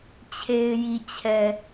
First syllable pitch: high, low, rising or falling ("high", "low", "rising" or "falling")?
low